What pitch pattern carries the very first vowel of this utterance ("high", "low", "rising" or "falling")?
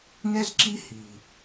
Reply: high